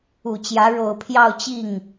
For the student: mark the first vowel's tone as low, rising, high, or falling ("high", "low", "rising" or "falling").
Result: low